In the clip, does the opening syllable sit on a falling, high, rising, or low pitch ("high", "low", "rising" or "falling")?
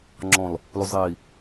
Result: low